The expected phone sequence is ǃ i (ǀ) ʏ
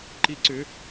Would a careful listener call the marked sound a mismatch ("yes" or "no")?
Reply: no